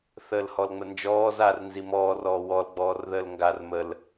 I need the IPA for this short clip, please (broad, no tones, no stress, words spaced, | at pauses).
θəːlhɔlŋ͡mənd͡ʒɔː zar nzimɔːr ɔːwɔl ɡ͡bɔːrðəːlŋɡar məl